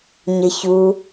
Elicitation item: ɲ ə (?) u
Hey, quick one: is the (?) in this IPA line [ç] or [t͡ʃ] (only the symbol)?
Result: ç